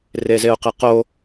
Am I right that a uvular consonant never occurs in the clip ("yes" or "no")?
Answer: no